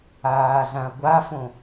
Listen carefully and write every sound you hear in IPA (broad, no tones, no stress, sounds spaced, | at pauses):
aː ɮ ã ɐ̯ ɡʷ a f õ